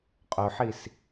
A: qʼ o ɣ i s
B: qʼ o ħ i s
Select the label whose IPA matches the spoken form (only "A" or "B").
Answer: B